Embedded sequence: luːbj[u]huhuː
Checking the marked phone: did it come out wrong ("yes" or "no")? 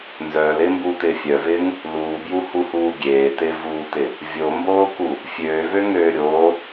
no